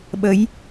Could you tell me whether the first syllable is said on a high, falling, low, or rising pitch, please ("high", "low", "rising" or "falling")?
rising